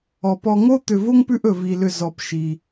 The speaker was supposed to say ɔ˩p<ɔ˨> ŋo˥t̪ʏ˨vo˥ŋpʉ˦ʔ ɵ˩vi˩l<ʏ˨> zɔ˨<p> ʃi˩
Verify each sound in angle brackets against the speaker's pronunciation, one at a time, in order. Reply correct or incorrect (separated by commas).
correct, correct, correct